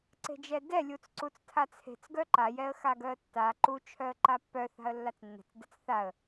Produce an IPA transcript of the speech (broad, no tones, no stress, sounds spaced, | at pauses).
ǀ e̤ d͡ʒ ɛ d ɛ lʲ u t͡s ǀ u t͡s tʰ a t͡sʰ e̤ t͡s ɡ œ ǃ a j ɛ ə̯ x a ɡ œ ə̯ tː a ǃ u t͡ʃʰ œ ə̯ ǃ a pː œ θ a̤ ə̯ lː a t͡s nː ɛ̤ t͡s d ɛ t͡s θ a ə̯